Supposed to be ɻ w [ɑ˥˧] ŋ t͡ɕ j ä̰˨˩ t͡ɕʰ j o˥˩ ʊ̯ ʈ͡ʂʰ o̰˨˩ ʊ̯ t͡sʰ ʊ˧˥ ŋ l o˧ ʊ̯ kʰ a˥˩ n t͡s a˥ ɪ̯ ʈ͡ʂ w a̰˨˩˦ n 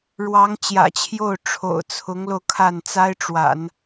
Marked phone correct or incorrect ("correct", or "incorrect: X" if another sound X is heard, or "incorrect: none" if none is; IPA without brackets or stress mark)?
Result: incorrect: ɑ˧˥